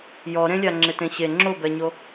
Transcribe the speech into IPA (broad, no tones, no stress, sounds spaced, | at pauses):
j ɔ ɾ ẽ lʲ a ŋ͡ǁ ɪ t ẽ ɕ e ŋ͡ǁ o b ɛ ɲ o